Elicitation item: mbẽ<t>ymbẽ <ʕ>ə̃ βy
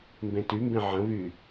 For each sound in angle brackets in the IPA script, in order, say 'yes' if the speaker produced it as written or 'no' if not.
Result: yes, yes

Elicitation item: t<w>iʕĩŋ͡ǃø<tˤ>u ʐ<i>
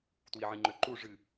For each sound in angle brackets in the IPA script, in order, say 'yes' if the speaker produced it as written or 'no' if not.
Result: yes, no, no

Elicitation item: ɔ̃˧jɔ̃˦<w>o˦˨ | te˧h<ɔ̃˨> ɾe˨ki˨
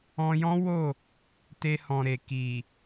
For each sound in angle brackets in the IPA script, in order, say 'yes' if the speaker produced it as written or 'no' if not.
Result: yes, yes

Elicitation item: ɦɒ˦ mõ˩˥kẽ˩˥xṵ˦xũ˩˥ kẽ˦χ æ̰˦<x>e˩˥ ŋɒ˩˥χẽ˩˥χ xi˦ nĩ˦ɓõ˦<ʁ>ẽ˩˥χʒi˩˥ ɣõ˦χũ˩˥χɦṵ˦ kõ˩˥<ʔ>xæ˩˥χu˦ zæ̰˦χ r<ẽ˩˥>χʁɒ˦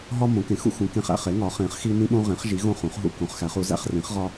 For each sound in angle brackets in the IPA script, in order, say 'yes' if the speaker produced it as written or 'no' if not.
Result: no, yes, no, no

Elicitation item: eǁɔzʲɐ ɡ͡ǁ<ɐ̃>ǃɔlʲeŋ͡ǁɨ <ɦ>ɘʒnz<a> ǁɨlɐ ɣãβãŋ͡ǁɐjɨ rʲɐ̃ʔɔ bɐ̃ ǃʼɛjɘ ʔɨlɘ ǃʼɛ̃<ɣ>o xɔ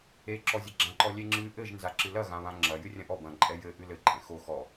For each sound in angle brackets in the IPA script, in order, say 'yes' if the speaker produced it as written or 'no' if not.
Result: no, no, yes, no

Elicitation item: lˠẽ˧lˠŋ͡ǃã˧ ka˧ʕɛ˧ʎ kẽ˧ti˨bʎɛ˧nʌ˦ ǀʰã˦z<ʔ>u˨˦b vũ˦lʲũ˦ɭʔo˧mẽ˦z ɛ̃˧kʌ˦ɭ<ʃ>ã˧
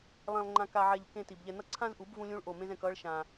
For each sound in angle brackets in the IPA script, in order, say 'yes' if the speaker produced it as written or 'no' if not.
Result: yes, yes

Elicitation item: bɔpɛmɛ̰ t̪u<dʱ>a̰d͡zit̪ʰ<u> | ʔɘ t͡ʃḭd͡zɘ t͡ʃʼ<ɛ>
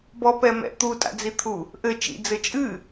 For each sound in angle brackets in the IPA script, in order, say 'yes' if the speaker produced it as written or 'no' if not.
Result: no, yes, no

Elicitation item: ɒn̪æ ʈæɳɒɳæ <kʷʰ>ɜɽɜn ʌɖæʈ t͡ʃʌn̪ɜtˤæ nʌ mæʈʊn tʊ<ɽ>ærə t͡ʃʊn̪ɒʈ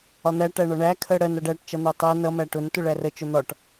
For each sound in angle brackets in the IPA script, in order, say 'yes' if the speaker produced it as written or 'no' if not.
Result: no, no

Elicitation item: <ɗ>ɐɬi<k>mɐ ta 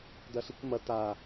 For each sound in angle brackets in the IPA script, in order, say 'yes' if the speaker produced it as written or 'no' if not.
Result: no, yes

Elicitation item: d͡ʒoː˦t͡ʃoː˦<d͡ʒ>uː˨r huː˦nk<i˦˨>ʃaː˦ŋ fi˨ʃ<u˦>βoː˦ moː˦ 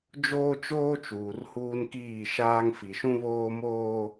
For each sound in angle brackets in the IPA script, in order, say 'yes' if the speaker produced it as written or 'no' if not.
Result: no, no, no

